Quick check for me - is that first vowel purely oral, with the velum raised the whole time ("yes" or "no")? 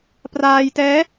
yes